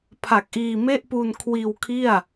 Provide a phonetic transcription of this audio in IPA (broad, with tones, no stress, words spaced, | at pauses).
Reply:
pʰa˨˩k̚ʔiː˧me˥˩ʔ pu˧nkʰwiː˧wkʰi˥˩a̯